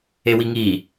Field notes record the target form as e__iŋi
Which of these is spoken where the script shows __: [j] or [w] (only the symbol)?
w